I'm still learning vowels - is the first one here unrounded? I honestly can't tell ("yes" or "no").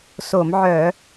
no